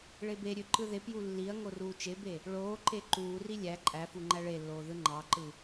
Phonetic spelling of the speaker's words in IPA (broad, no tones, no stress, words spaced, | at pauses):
ɭebeɾʲø ǃɯðepju lːiɐ̯ŋo ruːt͡ʃebe | ɭoː ǃeǃuːri lʲæ ǃʼæfu ŋ͡ǃæɭelːoː ðɯŋ͡ǃɑǃɯ